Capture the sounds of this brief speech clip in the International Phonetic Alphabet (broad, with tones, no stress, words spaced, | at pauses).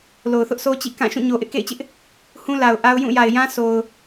lo˨ʊ̯θʊ˦ʔsʰo˦t͡ɕḭ˦˨ kã˦˨ʃũ˦˨ ɲo˨ʔɪ˦ʔkḛ˦˨ɪ̯t͡ɕɪ˦ʔ | hũ˦la˨ʊ̯ ʔa˦ʊ̯ jũ˦˨ja˨ɪ̯jã˦ sʰo˨ʊ̯